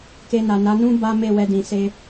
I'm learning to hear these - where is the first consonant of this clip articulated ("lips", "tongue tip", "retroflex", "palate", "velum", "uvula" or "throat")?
velum